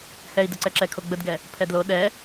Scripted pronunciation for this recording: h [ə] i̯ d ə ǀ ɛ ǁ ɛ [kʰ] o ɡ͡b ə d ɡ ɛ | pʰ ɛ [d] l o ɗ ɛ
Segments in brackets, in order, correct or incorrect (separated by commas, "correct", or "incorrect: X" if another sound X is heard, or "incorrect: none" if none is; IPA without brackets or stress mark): incorrect: ɛ, correct, correct